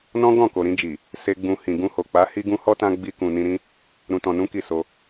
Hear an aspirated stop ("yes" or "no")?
no